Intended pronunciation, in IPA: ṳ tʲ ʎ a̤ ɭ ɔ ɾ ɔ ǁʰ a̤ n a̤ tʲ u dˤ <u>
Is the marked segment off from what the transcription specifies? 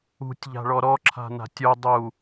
no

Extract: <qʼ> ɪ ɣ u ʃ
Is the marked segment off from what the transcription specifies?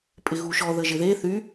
yes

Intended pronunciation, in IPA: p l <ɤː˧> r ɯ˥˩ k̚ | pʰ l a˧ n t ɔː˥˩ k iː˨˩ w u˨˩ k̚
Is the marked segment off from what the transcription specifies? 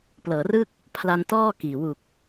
yes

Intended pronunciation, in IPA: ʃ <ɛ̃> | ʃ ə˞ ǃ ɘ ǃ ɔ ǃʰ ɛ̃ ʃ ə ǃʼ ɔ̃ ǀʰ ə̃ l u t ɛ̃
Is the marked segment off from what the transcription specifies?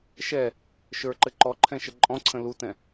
yes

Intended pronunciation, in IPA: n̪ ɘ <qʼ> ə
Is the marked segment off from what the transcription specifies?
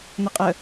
no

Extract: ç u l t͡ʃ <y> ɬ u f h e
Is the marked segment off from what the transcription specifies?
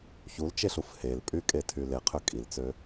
yes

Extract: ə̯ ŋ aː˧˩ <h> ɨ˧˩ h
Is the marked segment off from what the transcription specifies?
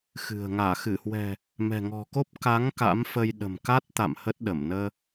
yes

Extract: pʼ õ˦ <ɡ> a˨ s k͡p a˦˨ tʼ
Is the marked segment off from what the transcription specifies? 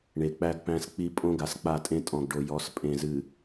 no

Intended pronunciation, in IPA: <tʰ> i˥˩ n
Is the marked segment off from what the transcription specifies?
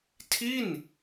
no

